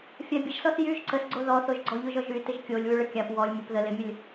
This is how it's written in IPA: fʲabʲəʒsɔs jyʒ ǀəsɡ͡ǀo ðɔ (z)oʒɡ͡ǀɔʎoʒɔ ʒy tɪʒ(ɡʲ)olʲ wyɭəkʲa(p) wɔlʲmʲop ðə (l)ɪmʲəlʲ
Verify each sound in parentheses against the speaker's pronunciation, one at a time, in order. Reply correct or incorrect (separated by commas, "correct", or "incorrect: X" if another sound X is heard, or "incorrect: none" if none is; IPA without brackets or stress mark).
incorrect: θ, incorrect: kʲ, correct, correct